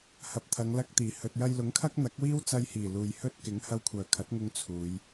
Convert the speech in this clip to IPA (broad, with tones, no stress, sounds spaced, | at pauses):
h ɐ˨ p̚ t̪ʰ ɐ˨˧ ŋ l ɐ˧ k̚ t̪ iː˨˩ h ɵ˨ t̚ j ɐ˧ j l ʊ˨˥ ŋ kʰ ɐ˥ k̚ n̪ ɐ˨˥ k̚ w iː˥ w t͡s ɐ˧ j h iː˨˩ l uː˨ j h ɵ˥ t̚ k ɪ˨˥ ŋ h ɐ˧ w kʷʰ œː˨˩ kʰ ɐ˨˥ t̚ ŋ ʊ˧ ŋ t͡sʰ uː˨˧ j